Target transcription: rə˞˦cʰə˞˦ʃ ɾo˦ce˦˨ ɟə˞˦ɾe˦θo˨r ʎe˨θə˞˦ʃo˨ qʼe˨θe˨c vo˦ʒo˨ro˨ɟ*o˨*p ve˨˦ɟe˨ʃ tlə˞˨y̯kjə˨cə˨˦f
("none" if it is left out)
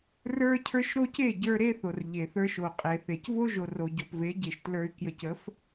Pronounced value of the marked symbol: o˨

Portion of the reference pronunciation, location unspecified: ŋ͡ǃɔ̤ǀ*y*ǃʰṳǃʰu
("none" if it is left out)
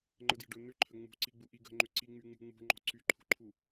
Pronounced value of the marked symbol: y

